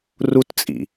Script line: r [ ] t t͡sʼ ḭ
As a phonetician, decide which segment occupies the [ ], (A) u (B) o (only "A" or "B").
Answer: A